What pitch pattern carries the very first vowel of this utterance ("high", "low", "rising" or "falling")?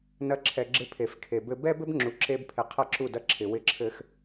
rising